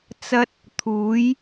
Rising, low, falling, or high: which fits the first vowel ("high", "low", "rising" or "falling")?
high